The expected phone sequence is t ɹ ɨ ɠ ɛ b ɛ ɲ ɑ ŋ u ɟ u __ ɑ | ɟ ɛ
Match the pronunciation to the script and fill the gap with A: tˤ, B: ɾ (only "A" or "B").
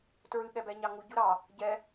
B